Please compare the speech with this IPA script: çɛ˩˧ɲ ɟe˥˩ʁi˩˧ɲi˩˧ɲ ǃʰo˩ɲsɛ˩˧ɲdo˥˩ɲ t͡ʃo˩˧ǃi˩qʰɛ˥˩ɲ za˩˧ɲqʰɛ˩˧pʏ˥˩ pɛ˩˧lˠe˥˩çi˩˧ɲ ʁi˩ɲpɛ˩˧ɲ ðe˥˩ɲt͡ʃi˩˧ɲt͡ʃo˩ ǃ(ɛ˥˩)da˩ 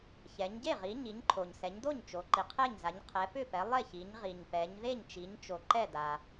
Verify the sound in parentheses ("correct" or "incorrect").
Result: correct